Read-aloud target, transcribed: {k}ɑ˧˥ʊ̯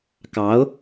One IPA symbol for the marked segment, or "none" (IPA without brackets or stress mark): k